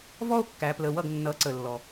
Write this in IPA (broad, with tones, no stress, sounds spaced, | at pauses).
v ɔ˥ o̯ kː æ˩˧ p l ə˩˧˩ w ʌ˥˩ ɡ nː ʌ˩˧ ǀ ə˩ lː ɔ˩